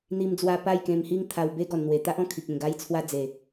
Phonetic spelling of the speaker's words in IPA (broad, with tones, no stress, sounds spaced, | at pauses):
n̪ i˧ m d͡z w a˧ p a˥˧ j k ẽ˧ m h i˦ ŋ t̪ʰ a˧ w b e˦ ɡ ɔ˨˩ n n̪ w e˨˩ t̪ a˦ ʔ ɔ̃˧ kʰ i˨ k̚ ẽ˨˩ ɡ a˧ j t͡sʰ w a˧ d͡z e˨˩